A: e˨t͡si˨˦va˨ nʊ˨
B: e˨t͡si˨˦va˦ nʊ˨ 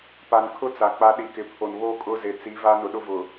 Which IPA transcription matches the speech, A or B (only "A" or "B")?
B